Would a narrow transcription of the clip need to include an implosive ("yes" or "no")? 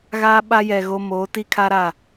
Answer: yes